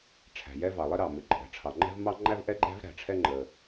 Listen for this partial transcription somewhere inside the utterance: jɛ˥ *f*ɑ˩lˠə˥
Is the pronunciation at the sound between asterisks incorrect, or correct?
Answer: incorrect